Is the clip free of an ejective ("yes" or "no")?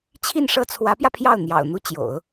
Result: yes